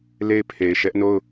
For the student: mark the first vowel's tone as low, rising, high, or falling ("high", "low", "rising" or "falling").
falling